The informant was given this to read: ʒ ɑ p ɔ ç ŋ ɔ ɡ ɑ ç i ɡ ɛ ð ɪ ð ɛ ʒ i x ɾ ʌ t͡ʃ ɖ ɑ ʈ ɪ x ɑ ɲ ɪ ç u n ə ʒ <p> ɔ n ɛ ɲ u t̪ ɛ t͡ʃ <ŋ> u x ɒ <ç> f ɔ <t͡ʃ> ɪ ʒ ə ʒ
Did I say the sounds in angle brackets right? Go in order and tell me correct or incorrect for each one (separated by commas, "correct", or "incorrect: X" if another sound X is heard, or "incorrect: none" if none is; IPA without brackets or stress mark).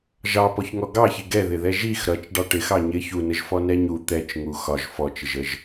incorrect: f, correct, incorrect: ʒ, correct